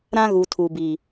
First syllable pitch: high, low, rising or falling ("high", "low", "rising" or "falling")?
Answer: high